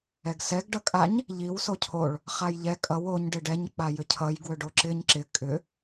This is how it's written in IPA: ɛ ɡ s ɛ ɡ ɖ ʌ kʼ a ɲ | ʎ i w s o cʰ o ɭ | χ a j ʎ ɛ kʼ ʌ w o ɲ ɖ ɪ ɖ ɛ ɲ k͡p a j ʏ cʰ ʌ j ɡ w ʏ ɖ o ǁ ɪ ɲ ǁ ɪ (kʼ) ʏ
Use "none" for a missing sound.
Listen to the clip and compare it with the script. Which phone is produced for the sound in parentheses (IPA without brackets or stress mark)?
kʼ